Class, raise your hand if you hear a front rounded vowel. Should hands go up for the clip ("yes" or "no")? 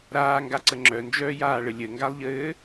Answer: yes